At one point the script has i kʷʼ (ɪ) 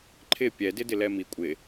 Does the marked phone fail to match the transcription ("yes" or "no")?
no